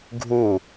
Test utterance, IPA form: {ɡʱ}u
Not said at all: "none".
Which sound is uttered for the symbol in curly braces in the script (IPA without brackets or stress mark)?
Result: ɡʱ